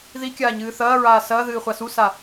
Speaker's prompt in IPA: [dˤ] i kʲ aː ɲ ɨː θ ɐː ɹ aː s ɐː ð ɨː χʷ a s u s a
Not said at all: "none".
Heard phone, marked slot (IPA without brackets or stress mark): ð